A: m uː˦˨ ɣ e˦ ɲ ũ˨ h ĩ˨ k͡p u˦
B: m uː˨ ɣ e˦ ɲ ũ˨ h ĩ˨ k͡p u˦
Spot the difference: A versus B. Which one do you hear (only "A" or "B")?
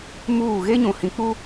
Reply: A